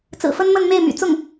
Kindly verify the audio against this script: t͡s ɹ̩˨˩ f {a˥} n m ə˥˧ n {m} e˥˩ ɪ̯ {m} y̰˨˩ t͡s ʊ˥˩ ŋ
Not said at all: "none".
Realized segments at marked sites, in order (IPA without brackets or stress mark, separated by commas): ə˥, m, m